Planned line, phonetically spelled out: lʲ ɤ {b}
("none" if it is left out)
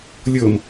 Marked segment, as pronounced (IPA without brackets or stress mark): m